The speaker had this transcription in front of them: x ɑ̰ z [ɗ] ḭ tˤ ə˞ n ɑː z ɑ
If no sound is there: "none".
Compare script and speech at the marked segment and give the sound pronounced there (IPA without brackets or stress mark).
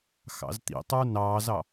t̪